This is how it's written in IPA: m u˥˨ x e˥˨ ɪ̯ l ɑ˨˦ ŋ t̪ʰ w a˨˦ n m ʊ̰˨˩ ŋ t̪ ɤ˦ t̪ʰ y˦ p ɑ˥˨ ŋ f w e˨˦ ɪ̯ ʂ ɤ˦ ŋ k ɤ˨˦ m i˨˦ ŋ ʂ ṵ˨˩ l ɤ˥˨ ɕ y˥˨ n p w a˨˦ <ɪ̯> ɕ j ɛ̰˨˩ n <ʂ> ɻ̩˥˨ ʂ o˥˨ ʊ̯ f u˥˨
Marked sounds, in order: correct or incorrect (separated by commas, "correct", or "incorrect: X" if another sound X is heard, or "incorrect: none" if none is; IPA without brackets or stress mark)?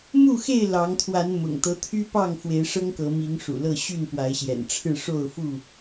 correct, incorrect: ʈ͡ʂʰ